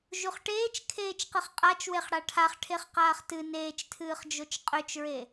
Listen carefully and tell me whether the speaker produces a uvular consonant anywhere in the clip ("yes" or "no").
yes